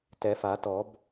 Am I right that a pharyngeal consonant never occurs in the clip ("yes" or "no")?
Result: yes